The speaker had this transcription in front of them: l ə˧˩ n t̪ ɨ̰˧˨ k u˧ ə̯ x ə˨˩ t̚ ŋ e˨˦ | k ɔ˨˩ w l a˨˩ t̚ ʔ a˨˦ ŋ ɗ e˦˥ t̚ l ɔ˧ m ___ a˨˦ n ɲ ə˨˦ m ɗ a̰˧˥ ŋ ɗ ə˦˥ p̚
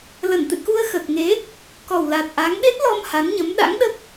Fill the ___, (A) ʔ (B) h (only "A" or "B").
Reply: B